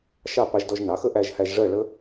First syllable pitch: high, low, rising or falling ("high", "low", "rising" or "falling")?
falling